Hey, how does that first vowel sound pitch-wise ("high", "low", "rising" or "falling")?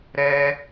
high